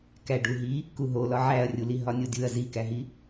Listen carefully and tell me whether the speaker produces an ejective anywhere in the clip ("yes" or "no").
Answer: no